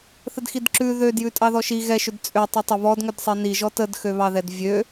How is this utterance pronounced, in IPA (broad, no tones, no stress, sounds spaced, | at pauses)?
θ ə d x i d ǁ ʉ ð ø d j ʉ tʼ ɑ ð ɔ ʃ i ɣ ɛ ʃ ʏ d t͡sʼ ø tˤ ʉ tˤ ə β ɔ d ŋ ʏ d sˤ i n i ʒ ɔ t ə d x ø β ɑ ð ɛ d vʲ ø